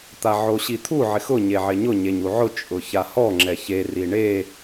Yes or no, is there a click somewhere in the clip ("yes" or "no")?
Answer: yes